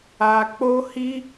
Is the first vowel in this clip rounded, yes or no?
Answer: no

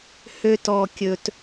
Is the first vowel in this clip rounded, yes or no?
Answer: yes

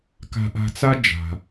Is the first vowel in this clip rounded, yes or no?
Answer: no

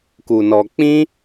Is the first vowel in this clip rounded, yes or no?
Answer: yes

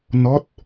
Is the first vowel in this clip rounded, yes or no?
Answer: yes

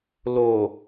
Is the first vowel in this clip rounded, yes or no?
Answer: yes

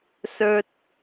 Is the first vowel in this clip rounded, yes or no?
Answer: yes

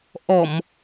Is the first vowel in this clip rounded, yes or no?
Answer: yes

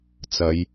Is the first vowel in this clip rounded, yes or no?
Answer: no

